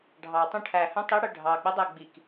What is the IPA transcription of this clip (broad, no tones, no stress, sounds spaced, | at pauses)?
ɖʱ ɑ tˤ ũ ʈʰ æ h œ̃ tˤ i ɽ œ ɖʱ ɑ ɡ͡b ɛ dˤ æ ɡ͡b i k